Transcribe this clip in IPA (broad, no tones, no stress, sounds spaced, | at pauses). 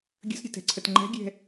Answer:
ɡʲ ə̤ s ɾʲ ə̤ t ɛ̤ ǀʰ ə t ŋ͡ǃ ɛ̤ ɡʲ ɛ̤